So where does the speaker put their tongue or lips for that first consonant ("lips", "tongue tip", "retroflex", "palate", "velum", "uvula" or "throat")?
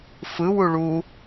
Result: lips